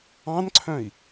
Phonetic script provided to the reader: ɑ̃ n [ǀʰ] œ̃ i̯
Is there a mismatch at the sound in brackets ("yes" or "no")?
no